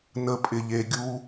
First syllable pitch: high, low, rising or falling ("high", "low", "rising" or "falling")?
low